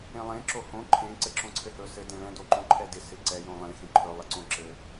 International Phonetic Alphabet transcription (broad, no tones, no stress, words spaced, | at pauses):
ẽlˠẽ ǁohõ ǃʰẽ ǀɘǁõǀʰɘhɵ sɘ dẽɭɛ̃ doǃõǃʰɛdɪ sɪǀɛ jõlˠẽ xẽǃʰɵ lˠɘǀõǁɘ